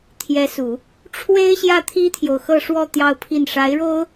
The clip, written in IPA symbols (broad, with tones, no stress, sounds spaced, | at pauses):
t̪ʰ j ɛ˧˥ s u˨˩˦ | ʈ͡ʂʰ w e˥ ɪ̯ ɕ j ä˥˩ t̪ʰ i˥ t̪ʰ j o˨ ʊ̯ x ɤ˥˧ ʂ w ɔ˥˧ t̪ j ɑ˥˧ ʊ̯ pʰ i˥˩ n ʂ a˧˥ ɪ̯ ɻ o˥ ʊ̯